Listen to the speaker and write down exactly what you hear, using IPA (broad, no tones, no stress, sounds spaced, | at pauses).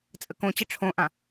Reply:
t͡sʼ ə k õ t͡ɕ ə ʈ͡ʂʰ õ ʔ ã